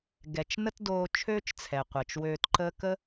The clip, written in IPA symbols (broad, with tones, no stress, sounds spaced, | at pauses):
ɡ ɛ˩ t͡ʃ n ə˥ t d oː˧ t͡ʃʰ øː˥ t͡ʃ t͡sʰ ɛ˩ qʷ əː˩ t͡ʃ w øː˧ t ǃ əː˥ k ə˥